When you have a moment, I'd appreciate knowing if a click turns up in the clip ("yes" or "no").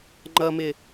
yes